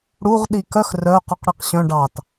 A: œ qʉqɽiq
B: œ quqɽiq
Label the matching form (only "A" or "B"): A